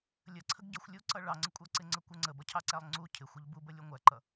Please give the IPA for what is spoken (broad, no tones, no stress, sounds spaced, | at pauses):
lʲ ə ǀʰ ə ɡ ɟ ʌ xʷ lʲ u ǀ ʌ ɭ ɑ ŋ͡ǀ ə kʷʼ æ ǀ ɪ ŋ͡ǀ ə kʷ ə ŋ͡ǀ ə b ʌ cʰ ɑ ǀ æ lˠ ŋ͡ǀ u cʰ ɪ xʷ ɪ ʎ b u b ə lʲ u ŋʷ æ ǃ ʌ